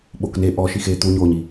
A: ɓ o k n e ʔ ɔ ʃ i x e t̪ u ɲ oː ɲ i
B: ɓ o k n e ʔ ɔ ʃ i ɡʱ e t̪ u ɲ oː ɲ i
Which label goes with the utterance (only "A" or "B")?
A